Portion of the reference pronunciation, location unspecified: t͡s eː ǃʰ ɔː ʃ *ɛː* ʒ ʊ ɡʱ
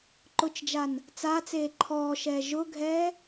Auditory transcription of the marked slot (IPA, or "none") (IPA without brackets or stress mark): ɛː